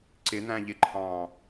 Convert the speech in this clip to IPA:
ǀ ɪ n̪ æ̃ ʎ ɪ ǃʰ ɑ̃ː

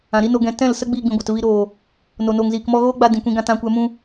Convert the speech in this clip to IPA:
ã˨ ɾ i˦ n o˧ ɡ ɛ̃˧ t ɛ̃˦˨ l s ə˦ ɡ͡b iː˧ ɡ͡b ĩ˨ ɡʷ a˨ t v i˧ ɾ oː˨ | n o˨ n oː˨ ŋ z iː˨ k m ɔ˧ ɣ oː˦ ɡ͡b a˧ d ĩ˨ kʷ ĩ˧ ɡ ã˧ t ã˨˦ kʷ ɛ˨˦ m ũ˧

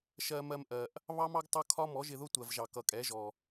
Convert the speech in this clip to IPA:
ʃ ɜ˧ m ɜ˧ m ʔ ɜ˨ ʔ | β ɑ˦ m ɑ˦ ɡ tˤ ʌ˦ kʰ ɒ˦ m ɔ˨˦ ʒ ɪ˧ ð ʊ˦ tʷ ɜ˨ v ʒ ɑ˨ k ʌ˨ kʼ ɛ˨˦ ʒ ɔ˨

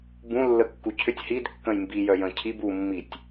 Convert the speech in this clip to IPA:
b ũ lː ə kː u cʰ ʏ tʲ h i d kː ə̃ j m b i j œ j ə̃ cʰ i b u mː i tʲ

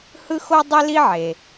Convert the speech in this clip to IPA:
h ɯ˥ x o˥ dˤ e˥ l i˥ ʕ e˩

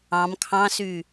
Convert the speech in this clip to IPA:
ɑ̃ m kʰ ɑ̃ s y

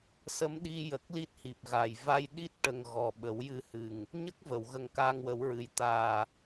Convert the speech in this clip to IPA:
s ə˧˥ m ɗ i˧ j ə˨˩ k̚ l i˦˥ t̚ h i˨˩ p̚ ɣ a˨˩ j v a˧ j ɗ i˦˥ t̚ ʈ ə˨˩ ŋ ɣ ɔ˨˩ ɓ ə˨˩˦ w j ɨ˧ h ɨ˨˩ ŋ | ɲ ə˦˥ k̚ v ə˨˩˨ w ɣ ə˧ ŋ k aː˧ ŋ w ə˨˩˦ w ɹ ɨ˨˩ j t̪ aː˨˩

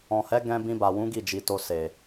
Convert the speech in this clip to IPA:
ɔ̃˨ h ɛ˨˦ ɡ ɛ̃˧ b ĩ˧ b a˨ w ũ˨˦ ɡ i˦˨ d͡ʒ i˨ t o˧ s e˨

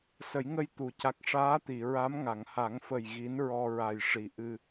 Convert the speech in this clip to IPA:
s ə˨˩˦ j ŋ ə˧ j t̪ u˨˩˨ c a˨˩ k̚ ʂ aː˧˥ t̪ i˨˩˨ ɹ a˧˥ m ŋ a˨˩˨ ŋ h a˨˩˦ ŋ f ə˨˩ j ɣ i˧˥ n ɹ ɔ˧ ɹ a˨˩ j ʂ i˨˩ ʔ ɨ˧

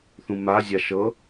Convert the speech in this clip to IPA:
θ ũ m a zʲ a ʃ ɤ

